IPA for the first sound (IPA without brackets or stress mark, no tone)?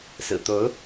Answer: s